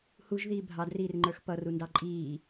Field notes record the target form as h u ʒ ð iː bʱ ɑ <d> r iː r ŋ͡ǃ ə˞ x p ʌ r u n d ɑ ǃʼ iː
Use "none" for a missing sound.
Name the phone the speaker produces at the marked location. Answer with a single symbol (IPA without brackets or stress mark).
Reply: d